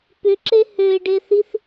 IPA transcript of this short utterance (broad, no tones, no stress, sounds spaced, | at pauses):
p ʏ ǁ e h ø ɪ̯ ɖ e θ i θ